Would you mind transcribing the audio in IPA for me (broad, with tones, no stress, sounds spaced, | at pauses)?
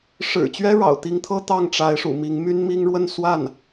ʂ ɻ̩˨˩ t͡ɕ ɥ ɛ˥ ɻ ɑ̰˨˩ ʊ̯ t̪ i˧˥ ŋ t̪ʰ ɤ˥ t̪ ɑ˥˩ ŋ ʈ͡ʂ a˧˥ ɪ̯ ʂ ṵ˨˩ m i˧˥ ŋ m y˥ n m i˥ ŋ ɻ w ə˥˧ n s w a˥˩ n